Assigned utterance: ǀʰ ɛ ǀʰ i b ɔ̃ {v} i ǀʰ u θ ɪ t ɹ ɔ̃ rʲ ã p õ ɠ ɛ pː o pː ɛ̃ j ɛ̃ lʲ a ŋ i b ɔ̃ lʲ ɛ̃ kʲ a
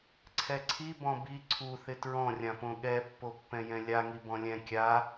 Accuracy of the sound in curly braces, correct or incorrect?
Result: incorrect